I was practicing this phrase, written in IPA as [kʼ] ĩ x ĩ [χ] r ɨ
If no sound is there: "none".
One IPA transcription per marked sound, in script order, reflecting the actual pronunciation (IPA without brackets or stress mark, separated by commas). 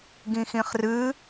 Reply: ɡ, χ